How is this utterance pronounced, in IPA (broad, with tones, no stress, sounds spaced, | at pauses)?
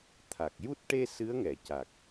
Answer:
t̪ʰ a˨˩ k̚ j u˦˥ t̚ ʈ e˧ s ɨ˧˥ ə̯ ŋ ɛ˨˩˨ c a˨˩ k̚